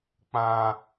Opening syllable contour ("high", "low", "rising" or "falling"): high